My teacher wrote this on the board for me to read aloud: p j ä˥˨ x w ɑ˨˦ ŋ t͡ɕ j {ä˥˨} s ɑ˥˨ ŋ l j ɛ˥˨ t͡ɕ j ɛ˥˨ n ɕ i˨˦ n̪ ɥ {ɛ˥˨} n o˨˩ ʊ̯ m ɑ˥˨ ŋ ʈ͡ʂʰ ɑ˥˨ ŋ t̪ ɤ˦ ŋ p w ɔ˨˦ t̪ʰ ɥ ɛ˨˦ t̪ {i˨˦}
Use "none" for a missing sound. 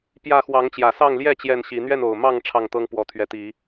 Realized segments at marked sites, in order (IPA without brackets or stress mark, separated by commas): ä˨˩, ɛ˥˨, i˨˦